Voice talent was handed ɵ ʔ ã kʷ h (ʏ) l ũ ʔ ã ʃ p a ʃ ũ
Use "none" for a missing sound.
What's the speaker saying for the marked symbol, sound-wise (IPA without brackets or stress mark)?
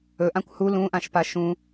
u